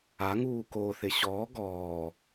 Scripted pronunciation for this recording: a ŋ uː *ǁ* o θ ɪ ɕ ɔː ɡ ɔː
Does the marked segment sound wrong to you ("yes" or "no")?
yes